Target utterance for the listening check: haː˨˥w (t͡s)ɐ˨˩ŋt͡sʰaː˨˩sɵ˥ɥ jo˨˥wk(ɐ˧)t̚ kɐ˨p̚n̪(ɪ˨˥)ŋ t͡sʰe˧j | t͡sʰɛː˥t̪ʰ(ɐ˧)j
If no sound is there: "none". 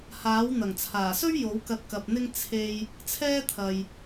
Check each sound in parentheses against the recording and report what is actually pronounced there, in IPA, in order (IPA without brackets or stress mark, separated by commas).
n̪, ɐ˧, ɪ˥, ɐ˨